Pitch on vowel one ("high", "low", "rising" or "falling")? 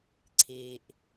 low